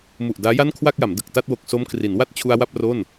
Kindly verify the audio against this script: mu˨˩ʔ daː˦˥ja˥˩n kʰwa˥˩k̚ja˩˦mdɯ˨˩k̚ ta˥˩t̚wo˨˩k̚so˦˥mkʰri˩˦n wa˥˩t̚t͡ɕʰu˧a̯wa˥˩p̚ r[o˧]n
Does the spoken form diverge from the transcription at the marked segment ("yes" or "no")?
yes